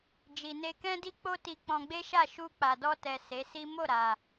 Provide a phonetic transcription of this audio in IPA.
d͡ʒ i˨ n e˧ k ɛ̃˦ d i˦ k͡p o˦ t i˧ k͡p ɔ̃˧ ɡ͡b e˦ ʃ a˦˨ ʃ u˧ k͡p a˨ d ɔ˧ t ɛ˨ s e˨˦ s i˦ m o˦˨ ɾ a˨

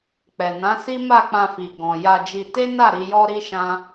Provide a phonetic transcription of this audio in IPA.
k͡p ɛ˨ n ã˨˦ s i˦ m a˦˨ k͡p ã˧ f i˨ ɡ ɔ̃˨ j a˧ d͡ʒ i˧ t e˦ n a˦˨ ɾ i˧ j ɔ˦ ɾ i˦ ʃ ã˦

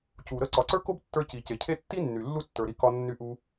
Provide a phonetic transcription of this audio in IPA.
c u˩ ɾ ə˥ ǀ ɒ˩ ǀ ə˞˥ k o˥ b tː ə˞˧ c i˩ c e˩ cʰ e˥ tː i˥ nː y˩ lː u˥ tː ə˞˩ ɾ i˧ k ɒ˧ nː y˧ ʔ u˧

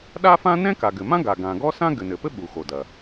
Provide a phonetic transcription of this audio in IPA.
ɗ a˥ f ã˥ n ɛ̃˥ k a˩ ɡ ɘ˩ m ã˥ ɡ a˩ ɡ ã˩ ɡ ɔ˥ s ã˥ ɡ ɘ˩ n ɘ˩ p ɘ˥ ɓ u˩ x o˩ d ɐ˩

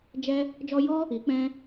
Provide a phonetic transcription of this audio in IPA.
d͡ʒ ɛ˦ | d͡ʒ ɔ˧ j ɔ˦ | i˨˦ k͡p ɛ̃˦

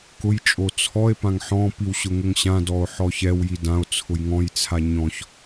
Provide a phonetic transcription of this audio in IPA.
k ʊ j t͡ʃʼ o t͡sʰ ɔ e̯ p ã ŋ ħ ɔ̃ p i w ɕ ʊ ŋ ʊ ŋ ɕ ã d ɔ o̯ ħ ɔ ç ɛ w j i d ã o̯ t͡sʰ ʊ j ŋ ɔ̃ j t͡sʰ a ɲ ɔ̃ ç

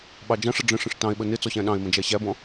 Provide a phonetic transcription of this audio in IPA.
ɓ ɑ d͡ʒ ɑ̃ ʂ ʌ ɖ͡ʐ ə̃ ʂ ə̃ ʂ t ɑ̃ e̯ ɓ ə n ɪ t͡s ɔ ɕ æ̃ ɗ ɑ̃ e̯ m ə̃ d͡ʒ æ ɕ æ b ɔ̃

